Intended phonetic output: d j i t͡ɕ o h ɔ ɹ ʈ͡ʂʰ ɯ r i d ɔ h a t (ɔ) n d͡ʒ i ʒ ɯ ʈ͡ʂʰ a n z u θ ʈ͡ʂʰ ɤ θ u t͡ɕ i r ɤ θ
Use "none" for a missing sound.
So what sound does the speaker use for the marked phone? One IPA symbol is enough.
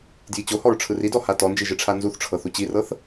ɔ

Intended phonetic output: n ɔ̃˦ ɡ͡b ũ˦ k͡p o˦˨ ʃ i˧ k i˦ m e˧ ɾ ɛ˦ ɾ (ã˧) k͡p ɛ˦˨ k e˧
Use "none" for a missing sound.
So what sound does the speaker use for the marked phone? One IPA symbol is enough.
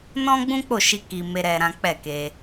ã˦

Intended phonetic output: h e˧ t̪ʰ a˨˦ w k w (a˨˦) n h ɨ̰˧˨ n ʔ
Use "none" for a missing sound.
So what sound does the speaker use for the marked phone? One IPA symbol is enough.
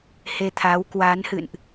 a˨˦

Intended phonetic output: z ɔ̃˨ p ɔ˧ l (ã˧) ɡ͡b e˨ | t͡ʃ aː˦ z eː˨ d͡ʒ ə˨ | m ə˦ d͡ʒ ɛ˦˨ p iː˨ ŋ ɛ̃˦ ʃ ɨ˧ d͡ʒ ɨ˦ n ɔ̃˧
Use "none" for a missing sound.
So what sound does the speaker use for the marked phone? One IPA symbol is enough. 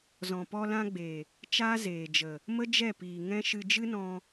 ã˧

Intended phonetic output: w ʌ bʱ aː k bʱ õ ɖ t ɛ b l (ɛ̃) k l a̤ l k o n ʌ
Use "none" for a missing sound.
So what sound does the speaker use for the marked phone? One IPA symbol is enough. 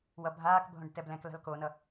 ɛ̃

